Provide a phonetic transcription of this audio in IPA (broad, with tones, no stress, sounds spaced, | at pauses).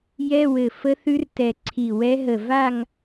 j ɛ˧˥˧ w ɘ˧˩ f ə˧˥ θ ʉ˧˥ r t ɛ˧˩ ǀʰ i˧˩ w ɛ˧˥ ɦ ə˧˩ v a˥˧ ŋ